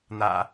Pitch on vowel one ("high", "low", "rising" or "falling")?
low